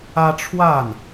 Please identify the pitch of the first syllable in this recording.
high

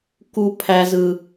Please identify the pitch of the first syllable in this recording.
high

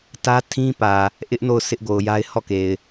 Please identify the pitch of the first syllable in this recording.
high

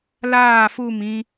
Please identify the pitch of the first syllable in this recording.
falling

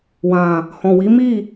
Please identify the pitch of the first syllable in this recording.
low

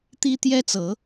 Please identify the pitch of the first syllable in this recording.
high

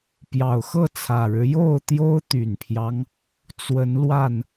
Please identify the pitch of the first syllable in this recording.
low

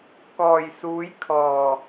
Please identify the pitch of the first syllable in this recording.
low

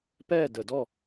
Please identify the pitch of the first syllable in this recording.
falling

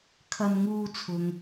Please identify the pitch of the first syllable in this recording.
high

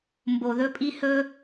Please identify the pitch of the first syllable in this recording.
low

